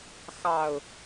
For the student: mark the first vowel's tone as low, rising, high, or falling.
low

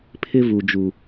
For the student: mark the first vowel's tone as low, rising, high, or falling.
high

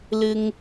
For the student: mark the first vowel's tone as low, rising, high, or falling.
high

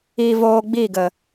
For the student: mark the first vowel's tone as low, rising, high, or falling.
low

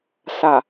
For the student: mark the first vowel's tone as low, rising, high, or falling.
low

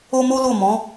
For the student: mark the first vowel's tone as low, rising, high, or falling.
high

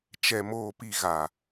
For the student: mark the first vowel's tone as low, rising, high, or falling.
low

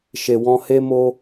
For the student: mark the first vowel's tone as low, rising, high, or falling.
low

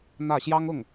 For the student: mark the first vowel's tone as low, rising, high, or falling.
falling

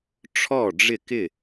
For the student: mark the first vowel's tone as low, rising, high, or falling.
falling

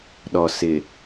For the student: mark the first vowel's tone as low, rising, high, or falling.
low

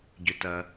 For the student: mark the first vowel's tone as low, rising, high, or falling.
low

